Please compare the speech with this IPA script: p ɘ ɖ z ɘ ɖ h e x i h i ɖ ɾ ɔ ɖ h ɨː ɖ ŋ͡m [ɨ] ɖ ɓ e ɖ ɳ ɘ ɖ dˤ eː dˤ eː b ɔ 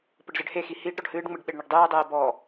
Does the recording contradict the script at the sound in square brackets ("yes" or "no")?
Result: no